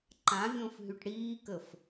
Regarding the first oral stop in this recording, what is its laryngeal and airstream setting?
click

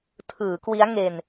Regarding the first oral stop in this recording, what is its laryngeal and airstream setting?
aspirated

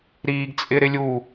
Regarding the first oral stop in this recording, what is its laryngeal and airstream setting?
plain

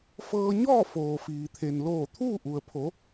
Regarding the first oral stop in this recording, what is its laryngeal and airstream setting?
aspirated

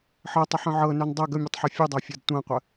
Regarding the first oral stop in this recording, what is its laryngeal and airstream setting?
plain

